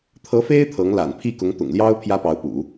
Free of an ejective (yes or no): yes